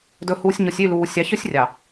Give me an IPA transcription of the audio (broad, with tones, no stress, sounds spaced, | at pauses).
d ɵ˨ h uː˨ sʲ ɲ o˨ sʲ y˦˨ l uː˨ sʲ ɑ˨˦ ç ɵ˦ sʲ rʲ ɑ˨